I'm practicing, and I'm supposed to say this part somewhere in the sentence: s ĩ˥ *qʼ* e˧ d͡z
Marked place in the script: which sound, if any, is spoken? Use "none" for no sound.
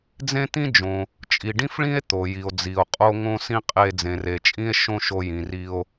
qʼ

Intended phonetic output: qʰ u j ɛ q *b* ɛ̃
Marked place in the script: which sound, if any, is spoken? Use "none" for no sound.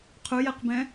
b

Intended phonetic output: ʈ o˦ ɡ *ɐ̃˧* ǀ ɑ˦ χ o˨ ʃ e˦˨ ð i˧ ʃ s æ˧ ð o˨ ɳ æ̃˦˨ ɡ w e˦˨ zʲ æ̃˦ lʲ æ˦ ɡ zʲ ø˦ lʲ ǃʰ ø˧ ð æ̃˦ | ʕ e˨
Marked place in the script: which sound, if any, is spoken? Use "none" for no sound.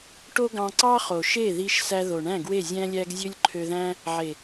ɑ̃˧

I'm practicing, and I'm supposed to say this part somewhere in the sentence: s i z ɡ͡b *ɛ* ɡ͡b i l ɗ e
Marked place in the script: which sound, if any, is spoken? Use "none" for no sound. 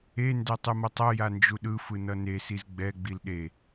ɛ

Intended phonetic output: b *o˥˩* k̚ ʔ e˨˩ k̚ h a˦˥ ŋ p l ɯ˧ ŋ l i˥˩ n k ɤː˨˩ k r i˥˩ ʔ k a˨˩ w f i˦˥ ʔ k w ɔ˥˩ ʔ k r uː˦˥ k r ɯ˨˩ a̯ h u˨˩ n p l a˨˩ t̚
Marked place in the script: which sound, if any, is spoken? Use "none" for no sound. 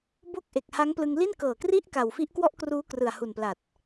o˥˩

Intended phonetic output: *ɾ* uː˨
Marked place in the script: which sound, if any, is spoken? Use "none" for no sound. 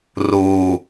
r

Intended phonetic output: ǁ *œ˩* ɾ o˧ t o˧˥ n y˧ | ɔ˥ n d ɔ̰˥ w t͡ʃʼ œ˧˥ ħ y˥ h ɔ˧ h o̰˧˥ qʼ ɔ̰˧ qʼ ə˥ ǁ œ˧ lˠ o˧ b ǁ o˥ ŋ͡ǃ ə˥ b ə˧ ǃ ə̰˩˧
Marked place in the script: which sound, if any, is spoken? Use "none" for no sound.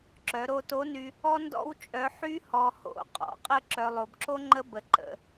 œ˩˧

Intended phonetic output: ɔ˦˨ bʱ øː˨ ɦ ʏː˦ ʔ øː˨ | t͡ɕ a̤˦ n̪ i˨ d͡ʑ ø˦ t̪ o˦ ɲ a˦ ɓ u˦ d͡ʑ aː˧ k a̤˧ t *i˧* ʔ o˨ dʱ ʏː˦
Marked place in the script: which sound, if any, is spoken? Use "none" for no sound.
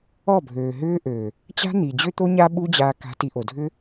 i˧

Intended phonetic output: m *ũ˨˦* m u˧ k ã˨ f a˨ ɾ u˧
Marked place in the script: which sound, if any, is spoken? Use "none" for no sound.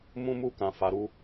ũ˧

